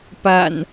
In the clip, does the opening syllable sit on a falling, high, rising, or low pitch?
low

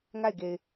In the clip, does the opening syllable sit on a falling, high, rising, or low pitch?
falling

